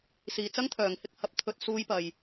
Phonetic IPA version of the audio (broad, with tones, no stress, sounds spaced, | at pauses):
s iː˨˧ t͡s ɐ˥ ŋ t̪ʰ œː˨ ŋ h ɪ˥ k̚ h ɐ˨˥ p̚ t̪ʰ ɵ˧ t̚ s uː˥ j p ɐ˧ j